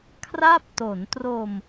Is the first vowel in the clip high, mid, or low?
low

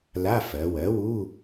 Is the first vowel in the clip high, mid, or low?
low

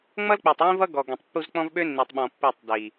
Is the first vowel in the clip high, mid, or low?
mid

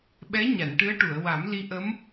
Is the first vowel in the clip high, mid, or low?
mid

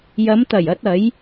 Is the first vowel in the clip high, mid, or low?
low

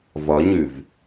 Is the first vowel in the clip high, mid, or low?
low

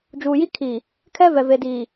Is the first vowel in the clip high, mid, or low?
high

